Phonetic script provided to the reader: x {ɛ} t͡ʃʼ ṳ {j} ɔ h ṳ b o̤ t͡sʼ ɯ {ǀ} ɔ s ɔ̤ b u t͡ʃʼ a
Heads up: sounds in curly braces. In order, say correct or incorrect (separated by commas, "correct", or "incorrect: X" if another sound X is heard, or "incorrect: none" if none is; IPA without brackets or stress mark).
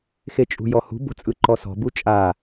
incorrect: e, correct, incorrect: ǃ